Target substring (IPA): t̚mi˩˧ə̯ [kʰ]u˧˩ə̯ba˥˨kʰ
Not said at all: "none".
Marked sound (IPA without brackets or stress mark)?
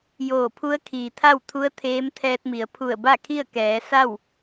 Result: pʰ